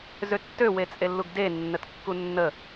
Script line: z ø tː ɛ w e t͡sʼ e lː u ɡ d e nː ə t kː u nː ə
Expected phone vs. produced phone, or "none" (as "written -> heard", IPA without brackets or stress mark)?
ɛ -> ø